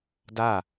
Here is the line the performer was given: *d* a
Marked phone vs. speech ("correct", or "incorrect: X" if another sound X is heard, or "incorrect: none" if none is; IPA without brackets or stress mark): correct